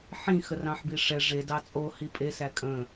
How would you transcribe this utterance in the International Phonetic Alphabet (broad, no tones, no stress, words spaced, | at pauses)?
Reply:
ħĩ xərɑ̃ħbiʂɛ ʐe dɑt͡sʼo hipʼe sækʼə̃